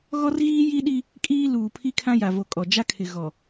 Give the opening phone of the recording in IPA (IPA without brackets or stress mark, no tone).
ɣ